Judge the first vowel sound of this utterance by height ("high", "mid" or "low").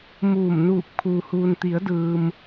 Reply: high